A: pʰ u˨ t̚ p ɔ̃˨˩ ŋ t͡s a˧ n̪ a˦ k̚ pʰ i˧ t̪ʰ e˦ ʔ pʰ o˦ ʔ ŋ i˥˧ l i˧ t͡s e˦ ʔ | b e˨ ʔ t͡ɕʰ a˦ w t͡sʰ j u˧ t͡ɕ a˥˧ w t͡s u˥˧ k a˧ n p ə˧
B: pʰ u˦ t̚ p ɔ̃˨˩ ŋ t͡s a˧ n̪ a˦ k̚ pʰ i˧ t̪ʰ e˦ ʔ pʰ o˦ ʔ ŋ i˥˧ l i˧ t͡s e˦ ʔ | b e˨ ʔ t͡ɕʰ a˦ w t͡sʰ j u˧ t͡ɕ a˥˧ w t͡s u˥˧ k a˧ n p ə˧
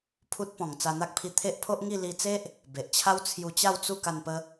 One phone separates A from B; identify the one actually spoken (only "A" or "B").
B